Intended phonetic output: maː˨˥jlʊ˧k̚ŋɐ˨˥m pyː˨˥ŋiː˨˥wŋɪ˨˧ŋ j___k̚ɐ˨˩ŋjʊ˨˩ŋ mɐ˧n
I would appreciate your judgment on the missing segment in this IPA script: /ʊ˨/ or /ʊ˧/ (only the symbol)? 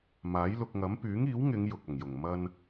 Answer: ʊ˨